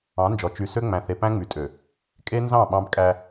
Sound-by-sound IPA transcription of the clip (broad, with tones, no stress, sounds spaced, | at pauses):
ɑ̃˨˦ n d͡ʒ ɔ˨ t͡ʃ y˨ s ø˦ ŋ͡m æ̃˨ θ e˨ p æ̃˦ ŋ͡m y˨ tʼ ø˨ | kʼ e˦ n z ɑ̃˦˨ ɓ ɑ̃˦ b kʼ æ˦